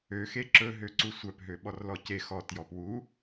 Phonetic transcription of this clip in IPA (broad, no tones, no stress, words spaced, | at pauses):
øxe ǁɵɦø ǀusʷœpɦø ɓɔrlɔce xɔtjɔp wu